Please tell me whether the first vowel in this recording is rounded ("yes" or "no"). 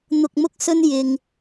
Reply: yes